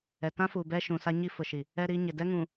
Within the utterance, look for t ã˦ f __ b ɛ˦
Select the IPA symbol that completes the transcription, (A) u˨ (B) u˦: A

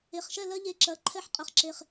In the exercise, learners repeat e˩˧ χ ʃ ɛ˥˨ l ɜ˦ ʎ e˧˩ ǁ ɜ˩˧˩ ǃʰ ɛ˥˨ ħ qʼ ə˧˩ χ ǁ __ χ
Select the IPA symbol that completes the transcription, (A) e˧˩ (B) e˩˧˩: A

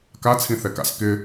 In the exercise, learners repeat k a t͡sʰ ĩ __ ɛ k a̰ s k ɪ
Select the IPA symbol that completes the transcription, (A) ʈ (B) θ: B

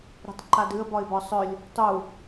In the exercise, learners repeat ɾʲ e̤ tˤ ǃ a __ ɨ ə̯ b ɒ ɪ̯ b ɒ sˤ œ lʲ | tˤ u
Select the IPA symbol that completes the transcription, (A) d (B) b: A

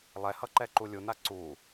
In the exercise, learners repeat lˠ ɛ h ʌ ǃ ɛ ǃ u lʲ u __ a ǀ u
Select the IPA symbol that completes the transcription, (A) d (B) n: B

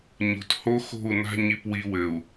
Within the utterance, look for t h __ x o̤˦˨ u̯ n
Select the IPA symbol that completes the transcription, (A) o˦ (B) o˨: A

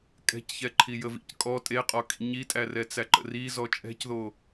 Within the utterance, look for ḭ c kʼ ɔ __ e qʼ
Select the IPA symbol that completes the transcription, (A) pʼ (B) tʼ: B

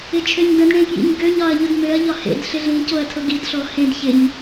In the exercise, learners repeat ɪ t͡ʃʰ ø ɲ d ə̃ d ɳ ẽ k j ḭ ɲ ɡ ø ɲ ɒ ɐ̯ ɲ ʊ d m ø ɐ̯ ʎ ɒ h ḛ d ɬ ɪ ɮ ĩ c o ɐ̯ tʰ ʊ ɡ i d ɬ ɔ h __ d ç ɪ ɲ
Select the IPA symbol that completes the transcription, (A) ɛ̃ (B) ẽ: B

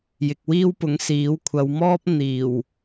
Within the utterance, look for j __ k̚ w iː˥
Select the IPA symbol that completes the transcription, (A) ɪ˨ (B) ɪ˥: A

